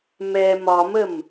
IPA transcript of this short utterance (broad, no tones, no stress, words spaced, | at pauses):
mɛ mɒməm